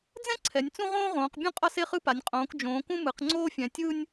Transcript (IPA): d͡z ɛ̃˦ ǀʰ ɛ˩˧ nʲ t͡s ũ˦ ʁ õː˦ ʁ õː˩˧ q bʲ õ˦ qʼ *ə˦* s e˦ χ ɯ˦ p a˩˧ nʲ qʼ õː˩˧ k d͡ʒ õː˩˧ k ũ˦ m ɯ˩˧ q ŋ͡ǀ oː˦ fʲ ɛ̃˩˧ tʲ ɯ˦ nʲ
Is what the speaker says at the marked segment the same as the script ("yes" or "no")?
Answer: no